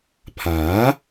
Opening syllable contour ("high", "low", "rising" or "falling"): rising